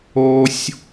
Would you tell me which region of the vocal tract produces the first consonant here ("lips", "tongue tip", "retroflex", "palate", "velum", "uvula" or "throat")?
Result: tongue tip